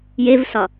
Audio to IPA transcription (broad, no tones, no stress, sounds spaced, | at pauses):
j e v s ɒ